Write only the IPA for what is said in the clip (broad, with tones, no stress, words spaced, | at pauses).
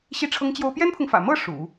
ɕi˥˩ʈ͡ʂʰɤ˥ŋt͡ɕjo˥ʊ̯ pjɛ˥npʰʊ˨ŋfä̰˨˩mɤ˥˩ ʂṵ˨˩˦